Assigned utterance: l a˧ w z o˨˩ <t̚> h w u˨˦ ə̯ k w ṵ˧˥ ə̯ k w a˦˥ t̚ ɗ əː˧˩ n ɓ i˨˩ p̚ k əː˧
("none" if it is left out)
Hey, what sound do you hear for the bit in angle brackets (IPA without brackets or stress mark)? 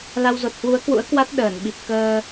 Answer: t̚